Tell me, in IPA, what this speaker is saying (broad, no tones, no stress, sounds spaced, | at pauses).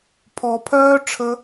pʰ ɔ pʰ œː ʈ͡ʂʰ ə